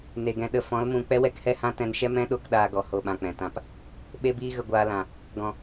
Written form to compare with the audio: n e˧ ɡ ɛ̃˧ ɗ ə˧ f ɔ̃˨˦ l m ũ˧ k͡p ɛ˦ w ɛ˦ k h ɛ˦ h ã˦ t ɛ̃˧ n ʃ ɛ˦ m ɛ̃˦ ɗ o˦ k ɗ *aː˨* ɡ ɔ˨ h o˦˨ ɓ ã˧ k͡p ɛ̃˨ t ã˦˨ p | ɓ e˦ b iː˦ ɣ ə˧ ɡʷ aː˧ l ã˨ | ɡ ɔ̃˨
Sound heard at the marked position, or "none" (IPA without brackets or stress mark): aː˧